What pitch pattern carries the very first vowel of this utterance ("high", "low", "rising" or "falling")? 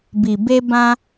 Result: low